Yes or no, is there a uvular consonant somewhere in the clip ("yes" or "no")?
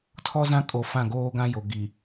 no